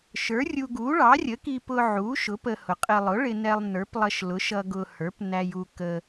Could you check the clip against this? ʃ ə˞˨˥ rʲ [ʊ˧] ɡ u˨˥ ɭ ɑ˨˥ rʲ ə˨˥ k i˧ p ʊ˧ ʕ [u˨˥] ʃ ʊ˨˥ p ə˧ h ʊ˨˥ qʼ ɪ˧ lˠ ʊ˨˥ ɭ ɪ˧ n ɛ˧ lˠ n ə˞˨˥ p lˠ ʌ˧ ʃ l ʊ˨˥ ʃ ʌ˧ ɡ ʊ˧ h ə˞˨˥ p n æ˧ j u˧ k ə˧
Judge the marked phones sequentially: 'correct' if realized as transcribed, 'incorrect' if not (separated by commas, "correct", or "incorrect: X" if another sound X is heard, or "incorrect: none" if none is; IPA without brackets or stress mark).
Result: incorrect: u˧, correct